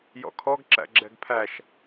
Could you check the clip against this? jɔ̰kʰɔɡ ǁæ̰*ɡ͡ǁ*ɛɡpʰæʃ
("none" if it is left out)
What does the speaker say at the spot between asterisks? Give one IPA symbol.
ɡ͡ǁ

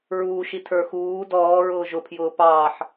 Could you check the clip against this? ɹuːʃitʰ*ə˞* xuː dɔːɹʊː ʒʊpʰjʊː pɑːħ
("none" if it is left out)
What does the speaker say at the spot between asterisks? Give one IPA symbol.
ə˞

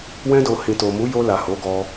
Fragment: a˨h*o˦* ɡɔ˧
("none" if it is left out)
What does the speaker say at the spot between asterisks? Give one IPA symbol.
o˨˦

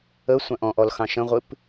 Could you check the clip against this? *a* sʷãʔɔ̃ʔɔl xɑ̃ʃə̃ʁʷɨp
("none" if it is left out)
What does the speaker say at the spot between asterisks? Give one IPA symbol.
ə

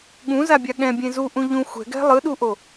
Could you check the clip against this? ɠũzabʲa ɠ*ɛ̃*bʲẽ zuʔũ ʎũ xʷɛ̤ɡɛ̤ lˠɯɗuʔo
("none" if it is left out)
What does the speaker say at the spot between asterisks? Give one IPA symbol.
ɛ̃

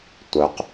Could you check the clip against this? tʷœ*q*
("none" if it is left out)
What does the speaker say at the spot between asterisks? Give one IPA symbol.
q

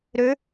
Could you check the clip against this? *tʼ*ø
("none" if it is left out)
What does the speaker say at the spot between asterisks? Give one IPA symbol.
ɾ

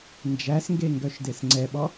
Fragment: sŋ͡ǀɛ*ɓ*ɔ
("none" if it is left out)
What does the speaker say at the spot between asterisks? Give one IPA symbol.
ɓ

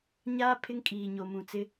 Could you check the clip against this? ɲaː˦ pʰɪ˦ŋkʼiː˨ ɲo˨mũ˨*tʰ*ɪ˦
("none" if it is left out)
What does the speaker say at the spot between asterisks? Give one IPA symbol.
t͡s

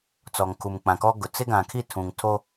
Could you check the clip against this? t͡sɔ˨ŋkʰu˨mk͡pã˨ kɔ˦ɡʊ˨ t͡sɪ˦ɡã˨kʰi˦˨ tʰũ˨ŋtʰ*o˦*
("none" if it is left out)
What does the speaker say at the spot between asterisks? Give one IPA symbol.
o˦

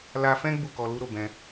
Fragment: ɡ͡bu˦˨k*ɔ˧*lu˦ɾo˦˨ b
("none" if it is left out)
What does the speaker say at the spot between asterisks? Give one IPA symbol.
ɔ˧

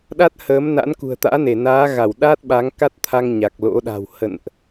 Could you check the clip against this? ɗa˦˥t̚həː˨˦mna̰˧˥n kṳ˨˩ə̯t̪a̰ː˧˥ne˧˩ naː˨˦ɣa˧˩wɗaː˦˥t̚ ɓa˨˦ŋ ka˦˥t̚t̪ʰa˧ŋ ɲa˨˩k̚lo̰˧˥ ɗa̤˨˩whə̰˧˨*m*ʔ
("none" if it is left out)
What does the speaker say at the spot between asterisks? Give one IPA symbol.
n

